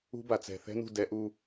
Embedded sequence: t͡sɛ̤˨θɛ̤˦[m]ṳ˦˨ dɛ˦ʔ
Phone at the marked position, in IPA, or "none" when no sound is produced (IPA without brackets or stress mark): n